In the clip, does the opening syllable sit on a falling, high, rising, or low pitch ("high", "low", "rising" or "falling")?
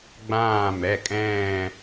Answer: falling